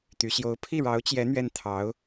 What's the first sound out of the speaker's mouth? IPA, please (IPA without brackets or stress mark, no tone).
t̪